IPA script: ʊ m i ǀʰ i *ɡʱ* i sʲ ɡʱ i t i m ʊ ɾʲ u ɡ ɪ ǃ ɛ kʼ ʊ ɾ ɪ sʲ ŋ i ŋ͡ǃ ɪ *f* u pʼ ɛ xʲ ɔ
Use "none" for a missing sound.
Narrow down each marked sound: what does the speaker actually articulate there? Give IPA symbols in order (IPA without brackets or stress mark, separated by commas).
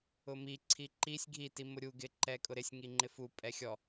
ǃ, f